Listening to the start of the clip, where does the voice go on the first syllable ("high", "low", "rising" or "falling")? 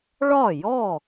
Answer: falling